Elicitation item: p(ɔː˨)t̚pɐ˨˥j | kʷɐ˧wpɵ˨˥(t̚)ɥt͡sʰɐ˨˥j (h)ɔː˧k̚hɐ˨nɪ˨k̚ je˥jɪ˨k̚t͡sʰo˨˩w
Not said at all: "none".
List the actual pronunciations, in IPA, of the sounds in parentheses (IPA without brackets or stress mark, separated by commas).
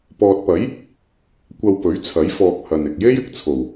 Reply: ɔː˨, none, f